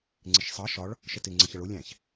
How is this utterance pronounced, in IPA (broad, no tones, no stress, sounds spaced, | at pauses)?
ŋ͡ǀ ɪ ʃ sˤ ɑ ʃ ɒ ɭ | ʃ ə t ɪ ŋ͡ǀ ʌ ç ʌ ɭ ʊ lʲ æ̃ ç